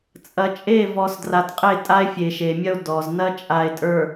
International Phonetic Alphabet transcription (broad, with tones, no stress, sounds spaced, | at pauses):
t͡sʼ ɐ˨ t͡ʃʼ e˦˨ v ɔ˨ s d r a˨ t qʼ e˦˨ tʼ a˦ e̯ fʲ e˨ ʃ e˨ mʲ ɐ˦ o̯ d ɔ˨ z n ɐ˦ t͡ʃʼ a˨ e̯ tʼ ə˞˨